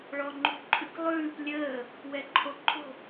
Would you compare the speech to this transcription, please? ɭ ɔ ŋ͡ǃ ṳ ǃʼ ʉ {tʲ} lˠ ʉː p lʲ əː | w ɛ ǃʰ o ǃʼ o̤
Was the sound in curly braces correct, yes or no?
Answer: no